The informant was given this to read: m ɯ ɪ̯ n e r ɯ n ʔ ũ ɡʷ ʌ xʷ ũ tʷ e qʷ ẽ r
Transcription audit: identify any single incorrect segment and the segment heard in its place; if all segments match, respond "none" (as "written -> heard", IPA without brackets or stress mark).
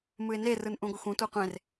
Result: none